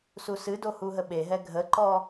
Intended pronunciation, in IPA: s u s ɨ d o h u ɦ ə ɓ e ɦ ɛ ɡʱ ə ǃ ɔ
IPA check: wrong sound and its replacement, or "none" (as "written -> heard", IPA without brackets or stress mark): none